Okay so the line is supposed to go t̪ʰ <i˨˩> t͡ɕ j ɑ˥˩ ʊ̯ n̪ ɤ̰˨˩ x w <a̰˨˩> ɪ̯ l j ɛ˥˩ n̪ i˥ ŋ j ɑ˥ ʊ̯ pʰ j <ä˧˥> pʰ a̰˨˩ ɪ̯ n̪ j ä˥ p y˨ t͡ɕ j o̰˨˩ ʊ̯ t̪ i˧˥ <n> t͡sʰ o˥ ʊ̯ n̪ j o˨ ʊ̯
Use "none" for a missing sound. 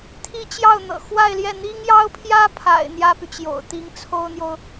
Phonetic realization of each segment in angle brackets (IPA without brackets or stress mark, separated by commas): i˥, a˥˧, ä˥, ŋ